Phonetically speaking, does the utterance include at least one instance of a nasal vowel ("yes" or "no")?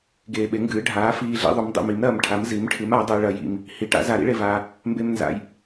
no